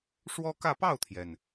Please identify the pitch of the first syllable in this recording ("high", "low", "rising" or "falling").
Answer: high